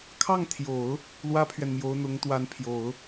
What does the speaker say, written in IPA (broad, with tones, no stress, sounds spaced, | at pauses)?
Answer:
kʰ ɑ˥˩ ŋ t̪ʰ j o˨˩˦ ʊ̯ | l w ä˥ pʰ ɥ ɛ˨ n m j o˧˥ ʊ̯ n̪ ʊ˧˥ ŋ t̪ w a˧˥ n pʰ j o˨˩˦ ʊ̯